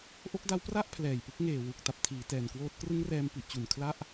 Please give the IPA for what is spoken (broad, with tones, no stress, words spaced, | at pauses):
ʔo˦˥k̚da˦˥wpra˥˩ʔ pʰlɛː˨˩jpɯ˦˥k̚ ŋeː˨˩wu˨˩k̚ ta˨˩p̚tʰiː˩˦tɛː˨˩nkwoː˦˥t̚ krɯ˦˥ŋrɛː˧mpi˨˩ʔt͡ɕu˨˩n kʰla˥˩ʔ